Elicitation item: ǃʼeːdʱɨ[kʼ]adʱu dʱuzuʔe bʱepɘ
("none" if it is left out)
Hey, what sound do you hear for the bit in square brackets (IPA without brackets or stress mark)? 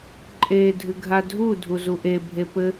ɡʱ